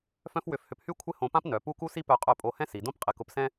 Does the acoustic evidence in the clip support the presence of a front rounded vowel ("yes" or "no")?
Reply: yes